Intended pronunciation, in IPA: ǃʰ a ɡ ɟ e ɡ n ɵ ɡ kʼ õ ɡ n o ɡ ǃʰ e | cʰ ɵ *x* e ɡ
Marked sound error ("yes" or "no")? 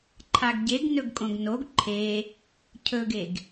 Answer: yes